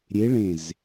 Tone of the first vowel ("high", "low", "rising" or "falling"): rising